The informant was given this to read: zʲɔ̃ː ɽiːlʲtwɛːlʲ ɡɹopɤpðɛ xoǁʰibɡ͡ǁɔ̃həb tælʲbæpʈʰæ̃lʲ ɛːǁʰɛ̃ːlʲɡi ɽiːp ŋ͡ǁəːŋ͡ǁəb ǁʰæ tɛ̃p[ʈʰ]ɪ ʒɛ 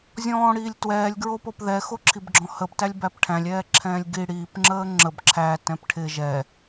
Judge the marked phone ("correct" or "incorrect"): correct